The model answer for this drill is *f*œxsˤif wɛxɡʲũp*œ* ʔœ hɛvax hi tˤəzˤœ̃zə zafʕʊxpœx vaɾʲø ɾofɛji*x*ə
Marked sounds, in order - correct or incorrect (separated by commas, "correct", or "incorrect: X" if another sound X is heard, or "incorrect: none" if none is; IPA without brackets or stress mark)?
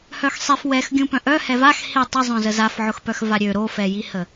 incorrect: h, incorrect: œ̃, incorrect: h